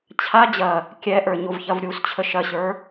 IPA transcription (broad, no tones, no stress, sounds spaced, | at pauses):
t͡ɕʰ a d͡ʑ ɐ | kʲ ɛ ʔ ə˞ ɲ o v ç ɐ v ɾʲ u s t͡ɕʰ ə ʃ ɐ ɕ ə˞